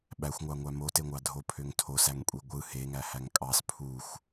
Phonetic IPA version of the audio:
ɓ æ xʷ ŋʷ ɑ ŋʷ æ m o t e ŋʷ ɑ dʱ o pʰ ø ŋ tʰ o s æ ŋ kʷʼ i ɡʷ ɯ h e ŋ æ h æ ŋ kʼ ɑ s pʰ u xʷ

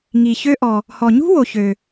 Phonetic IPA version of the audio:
ŋ i˩ ç ø˧ ʔ ɔ˩ | h ɔ˩ ɲ ṳ˥ w o˩ ç ø˩

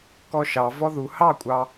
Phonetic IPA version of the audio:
k ɔ ʃ ɑ v ɔ ð u h ɑ kʷʼ ɑ

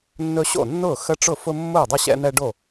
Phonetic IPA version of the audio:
nː ɵ˦ ɕ o̰˥˩ nː ʊː˥˩ x ə˦ ʈ͡ʂ ʊ˥˩ f ʊ˦ mː ʊː˥˩ dˤ ə˥˩ ɕ ɛ̰˦ n̪ ɛ˦ ɖ o˥˩

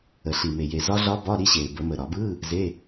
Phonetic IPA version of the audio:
ə˨˩ ɬ i˨˩ m e˨˩ j e˨˩ z ɒ˦˥ ɮ ɒ˦˥ b ɒ˧˥˧ ɾ i˦˥ ɕ e˨˩ b ə˧˩˧ m ə˨˩ ɾ ɒ˧˩˧ b ɯ˧˥˧ | z e˧˥˧

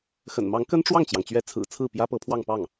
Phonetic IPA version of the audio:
x ə̰˨˩ n m ɑ˧˥ ŋ k ə˥ n ʈ͡ʂ w ɑ˥˩ ŋ t͡ɕ j ɑ˩ ŋ t͡ɕ ɥ ɛ˧˥ t͡sʰ ɹ̩˨˩ t͡sʰ ɹ̩˥˩ p j ä˥ p ɤ˧˥ pʰ w ɑ˥˧ ŋ p ɑ˥˩ ŋ

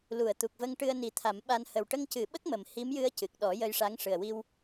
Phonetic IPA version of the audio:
l u˨˩˨ ə̯ t̪ u˨˩ k̚ v ə˧ ŋ ʈ ɨ˧ ə̯ n i˨˩˦ t̪ʰ a˨˩˦ m ɓ a˧ n h ə˨˩ w ʈ ə˧ ŋ c ɨ˨˩˦ ɓ ə˦˥ k̚ m ə˨˩ m h i˧˥ m j ɨ˧˥ ə̯ c ɨ˨˩ k̚ ɗ ɔ˨˩˦ j ə˧ j ʂ a˧˥ ŋ ʂ ɨ˨˩ ə̯ w i˧ w

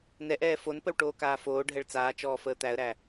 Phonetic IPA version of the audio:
n ɛ ʔ ɛː f o n p ə w ʈ oː k aː f oː ɖʱ ɛ ɭ t͡s aː t͡ʃ ɔː f əː t̪ æ ə̯ ɾ æ

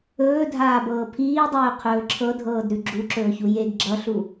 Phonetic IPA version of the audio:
ɵː dʱ aː b ɤː pʰ iː dˤ ɵː qʰ ɵː ǁʰ ɤ dʱ ɤː d ɾ ʉ ɡ͡ǁ u ǁ ɵː ç u j e ɡ ɡ͡ǁ ʌ ɬ u

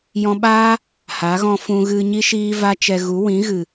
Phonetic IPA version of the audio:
j ɔ̃˧ ɓ aː˦ | h a˨˦ ɣ ɔ̃˧ f ũ˧ ɣ ɨ˧ ɲ i˦ ʃ iː˦ v a˦ t͡ʃ ɛ˧ ɣ u˨˦ w ĩ˨˦ ɣ ɨ˨

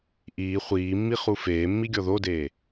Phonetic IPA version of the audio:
ʔ iː χʷ iː mː i χ u f eː mː i ɡʲ ɔ ð o d eː

